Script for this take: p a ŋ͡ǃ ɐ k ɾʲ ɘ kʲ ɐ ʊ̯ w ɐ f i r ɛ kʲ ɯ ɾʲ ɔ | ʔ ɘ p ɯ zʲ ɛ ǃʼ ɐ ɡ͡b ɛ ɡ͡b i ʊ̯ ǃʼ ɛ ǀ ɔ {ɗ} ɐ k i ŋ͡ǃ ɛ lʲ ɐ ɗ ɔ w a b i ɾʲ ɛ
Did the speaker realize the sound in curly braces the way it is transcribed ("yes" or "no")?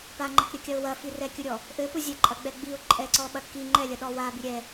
no